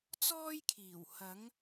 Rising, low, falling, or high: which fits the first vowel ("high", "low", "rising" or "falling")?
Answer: high